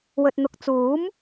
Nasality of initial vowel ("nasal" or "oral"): oral